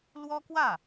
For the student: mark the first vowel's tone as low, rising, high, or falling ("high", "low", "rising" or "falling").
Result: high